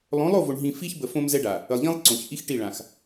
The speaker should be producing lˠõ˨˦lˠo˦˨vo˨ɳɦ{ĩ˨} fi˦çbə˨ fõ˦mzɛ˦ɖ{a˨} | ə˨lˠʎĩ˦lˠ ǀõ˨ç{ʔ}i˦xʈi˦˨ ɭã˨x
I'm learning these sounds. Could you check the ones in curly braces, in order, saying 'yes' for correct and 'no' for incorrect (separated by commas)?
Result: yes, yes, yes